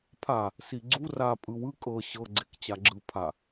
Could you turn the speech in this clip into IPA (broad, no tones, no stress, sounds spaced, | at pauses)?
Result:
pʰ a | s i ɡ͡ǀ u r a pʼ ɯ w ɯ kʼ ɤ ɕ ɤ ɡ͡ǀ e k t͡ɕ a ɡ͡ǁ ɯ pʰ a